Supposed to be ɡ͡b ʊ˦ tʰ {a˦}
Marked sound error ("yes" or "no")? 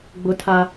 no